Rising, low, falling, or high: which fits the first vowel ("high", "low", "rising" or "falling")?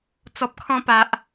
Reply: low